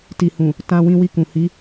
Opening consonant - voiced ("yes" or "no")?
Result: no